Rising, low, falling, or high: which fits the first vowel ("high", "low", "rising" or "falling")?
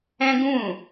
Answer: high